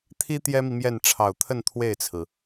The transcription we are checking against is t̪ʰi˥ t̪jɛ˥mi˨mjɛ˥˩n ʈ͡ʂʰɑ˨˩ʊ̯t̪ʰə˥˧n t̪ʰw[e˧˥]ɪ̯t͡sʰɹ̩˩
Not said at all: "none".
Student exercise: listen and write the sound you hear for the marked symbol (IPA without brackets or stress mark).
e˥˩